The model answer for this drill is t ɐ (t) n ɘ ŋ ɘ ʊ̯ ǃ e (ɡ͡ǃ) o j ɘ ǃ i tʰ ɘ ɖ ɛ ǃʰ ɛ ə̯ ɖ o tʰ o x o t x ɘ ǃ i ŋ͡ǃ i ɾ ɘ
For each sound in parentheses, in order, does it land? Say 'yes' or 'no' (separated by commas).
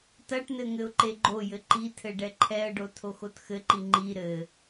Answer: no, yes